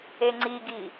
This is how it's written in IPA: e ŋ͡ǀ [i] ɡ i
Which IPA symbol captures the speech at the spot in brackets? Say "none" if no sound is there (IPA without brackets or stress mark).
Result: i